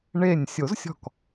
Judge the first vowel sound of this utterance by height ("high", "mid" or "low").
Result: mid